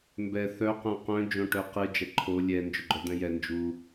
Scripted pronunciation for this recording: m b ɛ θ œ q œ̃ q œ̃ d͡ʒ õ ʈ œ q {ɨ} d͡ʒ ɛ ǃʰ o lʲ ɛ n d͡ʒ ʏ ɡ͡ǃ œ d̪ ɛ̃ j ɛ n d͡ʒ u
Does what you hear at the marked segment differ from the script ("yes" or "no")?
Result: no